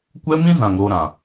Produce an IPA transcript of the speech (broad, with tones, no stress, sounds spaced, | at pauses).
kʷ ɛ˦ m ĩ˦ z ã˨ ŋ ɾ o˧ ɾ ã˨